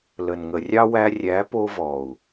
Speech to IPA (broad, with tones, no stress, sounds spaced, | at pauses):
l ə˨ n ŋ ə˨ rʲ ɑ˦ w æ˧ rʲ æ˨˦ p o˧ v ɔ˨ u̯